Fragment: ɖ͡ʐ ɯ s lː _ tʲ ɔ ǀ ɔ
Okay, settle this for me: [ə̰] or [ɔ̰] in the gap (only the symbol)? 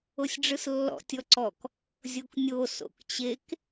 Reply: ɔ̰